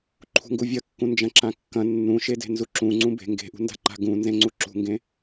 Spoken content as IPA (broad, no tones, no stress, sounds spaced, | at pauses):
ǃʰ ṳ ŋ ɡ u vʲ ɐ kː ũ n d͡ʒ ɐ̃ ǁ ã kː ɐ̃ nː ũ ʃ e d e̤ n z u ǁ ũ ŋ͡ǀ ũ b e̤ ŋ ɡ e̤ ʔ ṳ n d a̤ ǃ a̤ ɡ ũ n z ẽ ŋ͡ǀ u ǁ ṳ ŋ ɡ ẽ